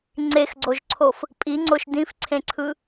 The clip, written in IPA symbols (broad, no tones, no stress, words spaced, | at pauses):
ŋ͡ǀexɡ͡ǀoʒǀʰof | pʼiŋ͡ǀoʃ dĩfǀʰẽǀʰɯ